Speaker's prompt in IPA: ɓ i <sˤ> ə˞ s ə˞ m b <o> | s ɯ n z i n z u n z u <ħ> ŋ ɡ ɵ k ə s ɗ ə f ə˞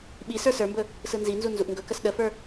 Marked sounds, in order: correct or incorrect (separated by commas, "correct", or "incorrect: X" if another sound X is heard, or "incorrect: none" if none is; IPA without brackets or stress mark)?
incorrect: s, incorrect: ɵ, incorrect: ʔ